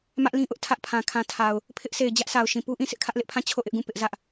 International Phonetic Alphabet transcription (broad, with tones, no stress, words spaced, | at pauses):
mä˦ʔlĩ˦ʔʊ˦ʔ tʰä˦ʔpʰã˨ kʰã˨tʰa˨ʊ̯ | pʰɪ˦ʔse˨ɪ̯d͡ʑä˦ʔsʰa˨ʊ̯ ʃĩ˨pu˦ʔĩ˦˨ sɪ˦ʔkʰä˦ʔlɪ˦ʔpʰã˦˨ t͡ɕʰo˦˨ʔɪ˦ʔɡũ˦˨ pɪ˦ʔzä˦ʔ